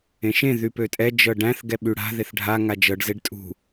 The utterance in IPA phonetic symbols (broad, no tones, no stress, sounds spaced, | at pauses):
ẽ ʃ ẽ ð y p ø tʼ ɛ d͡ʒ ɤ ɖ æ̃ θ ɡ ɛ ɓ y ɽ a̤ ð e θ ɖʱ a ŋ a d͡ʒ ɤ ɖ z e ɖ tʼ ṳ